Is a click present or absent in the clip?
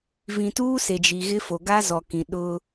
absent